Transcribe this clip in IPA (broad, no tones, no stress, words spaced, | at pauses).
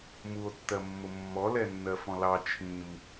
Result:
muo̯tːɜmːʊ mːɔlɛnːɜ fɔ̃lɑ t͡ʃʰĩm